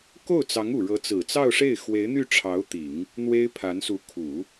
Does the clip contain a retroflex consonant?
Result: yes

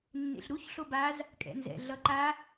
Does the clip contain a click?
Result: yes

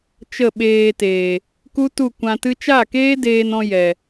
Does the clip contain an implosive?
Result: yes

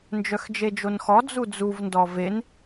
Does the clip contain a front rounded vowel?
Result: yes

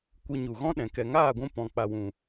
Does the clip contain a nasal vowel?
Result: yes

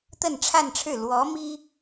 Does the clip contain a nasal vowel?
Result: no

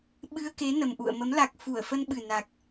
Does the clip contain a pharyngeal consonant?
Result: no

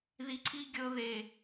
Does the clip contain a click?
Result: yes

